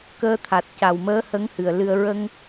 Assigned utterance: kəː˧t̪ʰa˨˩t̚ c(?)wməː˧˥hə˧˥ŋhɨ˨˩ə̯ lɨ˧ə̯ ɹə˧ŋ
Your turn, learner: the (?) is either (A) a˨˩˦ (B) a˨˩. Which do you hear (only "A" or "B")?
B